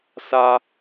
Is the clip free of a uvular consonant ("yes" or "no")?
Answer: yes